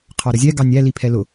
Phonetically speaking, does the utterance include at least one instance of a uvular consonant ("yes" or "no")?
yes